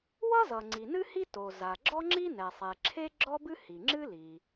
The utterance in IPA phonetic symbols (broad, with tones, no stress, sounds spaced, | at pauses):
w ʌ˥ z ʌ˩ ŋ͡ǀ i˩ n ɨ˥ h i˥ t o˩ z a˩ ɡ͡ǁ ɔ˥ ŋ͡ǁ i˥ n ɛ˩ sˤ e˩ ǁʰ e˥ ɡ͡ǁ ɔ˥ b ɨ˥ h i˩ ŋ͡ǁ ɨ˥ l i˩